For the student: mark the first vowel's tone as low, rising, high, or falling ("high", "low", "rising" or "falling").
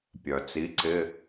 low